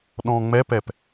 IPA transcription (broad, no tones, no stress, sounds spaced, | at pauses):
ɗ ɔ̃ ŋ͡m ɛ p ɛ p